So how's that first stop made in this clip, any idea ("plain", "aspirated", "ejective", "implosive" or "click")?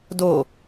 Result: plain